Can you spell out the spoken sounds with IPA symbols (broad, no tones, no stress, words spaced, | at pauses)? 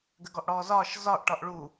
ɡəɡɔʔɽɔːzɒːʃ zɒʔ ʈɒʔɭu